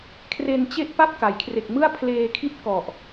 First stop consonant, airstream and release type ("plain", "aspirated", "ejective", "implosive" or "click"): aspirated